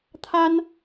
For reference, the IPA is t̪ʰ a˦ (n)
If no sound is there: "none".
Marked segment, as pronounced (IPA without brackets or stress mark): n